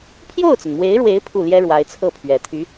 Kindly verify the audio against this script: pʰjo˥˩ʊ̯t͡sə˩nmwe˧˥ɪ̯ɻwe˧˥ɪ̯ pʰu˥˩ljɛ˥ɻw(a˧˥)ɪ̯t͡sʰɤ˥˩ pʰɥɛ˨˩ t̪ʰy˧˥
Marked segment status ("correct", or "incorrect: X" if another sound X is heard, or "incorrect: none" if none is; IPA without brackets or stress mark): correct